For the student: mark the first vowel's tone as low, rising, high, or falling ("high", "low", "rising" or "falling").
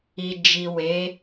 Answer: low